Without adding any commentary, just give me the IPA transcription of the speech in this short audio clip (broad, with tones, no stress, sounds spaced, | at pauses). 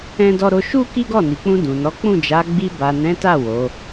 ɛ̃˦ d ɔ˦ ɾ o˧ ʃ u˦ k i˦ ɡ ɔ˦˨ n i˨ k͡p ũ˧ d ũ˨ n ɔ˨˦ k͡p ũ˦˨ d͡ʒ a˨˦ ɡ͡b i˧ b a˨ n ɛ̃˨˦ t a˦˨ w o˨˦